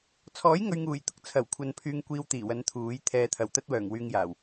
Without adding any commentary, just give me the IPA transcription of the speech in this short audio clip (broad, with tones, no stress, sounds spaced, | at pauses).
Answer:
t͡sʰ ɔː˨˥ j ŋ ɵ˨ ɥ ŋ uː˨˩ j t̪ ʊ˨ k̚ t͡sʰ ɐ˨˩ w kʷʰ ɐ˨ n pʰ yː˧ ŋ kʷ iː˧ w t̪ iː˨˩ w ɐ˨˧ n t̪ʰ uː˨˥ j t̪ʰ ɛː˨ t̪ʰ ɐ˨˩ w t̪ ɐ˥ t̚ w œː˨˩ ŋ w yː˧ ŋ j aː˨˩ w